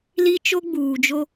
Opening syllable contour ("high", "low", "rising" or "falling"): high